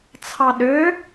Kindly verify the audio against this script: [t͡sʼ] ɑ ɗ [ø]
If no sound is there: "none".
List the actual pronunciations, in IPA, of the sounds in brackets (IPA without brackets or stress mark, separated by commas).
t͡sʰ, ø